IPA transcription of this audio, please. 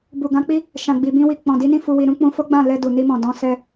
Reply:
b u˨ ɡ ã˨˦ k͡p i˦ | ʃ ã˨ ɡ͡b i˨ b ĩ˧ w i˨ k͡p ɔ̃˨ d i˨˦ n ĩ˦˨ f u˧ w i˧ ɾ ũ˦ k͡p ũ˧ f o˦ ɡ͡b ã˦˨ l ɛ˧ d u˨ n i˧ m ɔ̃˨ d ɔ̃˨˦ s ɛ˧

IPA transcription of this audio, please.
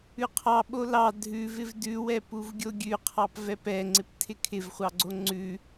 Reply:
ʉ qʰ ɑ ɓ o l ɑ dʱ ʉ v ɪ v d ʉ w ɛ p u v ɡʲ o ɡʲ ʉ qʰ ɑ p v ɛ p ɛ ŋ͡ǀ ɪ p tʰ ɪ kʰ ɪ v χʷ ɑ ɡ͡ǀ o ŋ͡ǀ ʉ

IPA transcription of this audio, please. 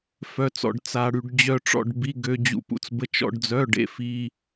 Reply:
f œ˧ t͡s ɔ̰˧ ɖ t͡s a˧ ɽ y˧ ɖ d͡ʑ œ˧ ʈ͡ʂ ɔ̰˧ ɖ b i˧˥˧ ɡ ø˧ d͡ʑ ṵ˧ p ṵ˧ t͡s b ə˧˥˧ t͡ʃ ɔ̰˧ ɖ d͡z œ˧˥˧ ɖ ḛ˧˥˧ f i˧˥˧

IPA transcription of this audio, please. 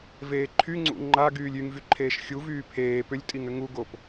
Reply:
v eː ǃʰ y ŋ͡ǀ ṵ ŋ͡ǃ a ɡ yː lʲ y ŋ v y ǃʰ eː ʃ xʲ u v yː pʰ eː p ʏ lʲ tʼ i ŋ ʏ ŋ u ɡ o p

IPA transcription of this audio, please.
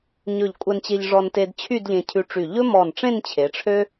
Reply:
ɲ ɵ˧˩ ʎ kʷʼ ɛ˧ n t͡ɕ e˧ ʎ ʐ ɔ˧ n t e˧ d t͡ɕʰ y˥˧ d ʎ ẽ˧ cʰ ʉ˧ ʈ͡ʂ y˧˩ ʎ ɵ˥ m ɔ˧˩ n ʈ͡ʂ ẽ˥˧ n t͡ɕʰ e˩˧ ʈ͡ʂʰ ø˥

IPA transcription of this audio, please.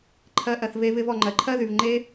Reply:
ǃʰ ɜ˧ ʔ ɜ˨ θ v e˦ v ɪ˦ v ɔ˨ ŋ͡ǃ ɜ˨ ǃʰ ɜ˦ ð y˨ v ŋ͡ǃ e˦

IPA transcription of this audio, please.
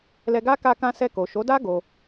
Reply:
l ɛ˧ ɡ a˦ k a˧ k ã˧ s ɛ˧ k o˨ ʃ o˨˦ d a˦ ɡ o˧

